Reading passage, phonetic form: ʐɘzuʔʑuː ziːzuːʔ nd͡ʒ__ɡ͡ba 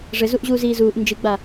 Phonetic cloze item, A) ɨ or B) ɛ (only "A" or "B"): A